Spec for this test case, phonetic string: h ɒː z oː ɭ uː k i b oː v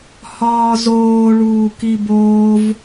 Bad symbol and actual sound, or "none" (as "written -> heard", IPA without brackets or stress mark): none